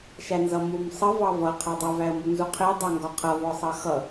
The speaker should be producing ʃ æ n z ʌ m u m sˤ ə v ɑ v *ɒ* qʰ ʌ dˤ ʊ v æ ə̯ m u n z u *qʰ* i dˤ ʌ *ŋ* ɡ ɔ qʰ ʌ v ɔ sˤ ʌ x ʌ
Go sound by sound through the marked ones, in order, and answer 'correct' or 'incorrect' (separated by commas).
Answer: incorrect, correct, correct